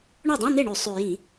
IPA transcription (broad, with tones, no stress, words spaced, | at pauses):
ɳo˥˩dˤũ˧˥˧n̪e˥˩ɳʉ˧˩˧ sˤʉ˨˩jĩ˧˩˧